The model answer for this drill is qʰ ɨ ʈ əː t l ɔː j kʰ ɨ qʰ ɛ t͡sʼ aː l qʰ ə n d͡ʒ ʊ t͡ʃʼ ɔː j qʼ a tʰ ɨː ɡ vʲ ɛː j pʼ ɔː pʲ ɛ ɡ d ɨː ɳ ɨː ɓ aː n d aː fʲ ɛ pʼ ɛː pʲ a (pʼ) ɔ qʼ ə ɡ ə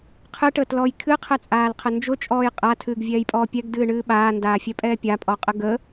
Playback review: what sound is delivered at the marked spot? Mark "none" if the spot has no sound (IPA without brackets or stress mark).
pʼ